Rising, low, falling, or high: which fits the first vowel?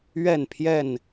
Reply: falling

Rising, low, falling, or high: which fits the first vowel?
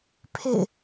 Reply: falling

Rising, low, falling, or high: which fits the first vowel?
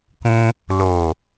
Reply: high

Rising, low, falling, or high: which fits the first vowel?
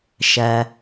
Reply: low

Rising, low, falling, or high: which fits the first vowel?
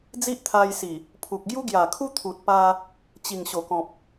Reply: high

